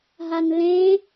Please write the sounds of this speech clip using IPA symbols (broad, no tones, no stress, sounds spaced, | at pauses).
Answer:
ɦ a n l ẽ